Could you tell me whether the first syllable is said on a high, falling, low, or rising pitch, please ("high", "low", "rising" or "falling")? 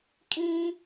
high